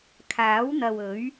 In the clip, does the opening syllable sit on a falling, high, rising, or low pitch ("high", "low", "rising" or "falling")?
rising